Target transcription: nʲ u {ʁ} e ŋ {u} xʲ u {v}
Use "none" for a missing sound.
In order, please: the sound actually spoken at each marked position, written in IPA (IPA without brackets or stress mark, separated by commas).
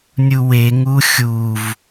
w, u, v